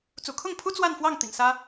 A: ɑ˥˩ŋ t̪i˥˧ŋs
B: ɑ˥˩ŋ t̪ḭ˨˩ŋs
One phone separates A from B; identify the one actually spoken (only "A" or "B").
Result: B